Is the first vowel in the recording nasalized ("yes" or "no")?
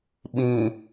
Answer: yes